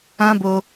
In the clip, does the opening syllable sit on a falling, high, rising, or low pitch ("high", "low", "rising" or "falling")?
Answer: high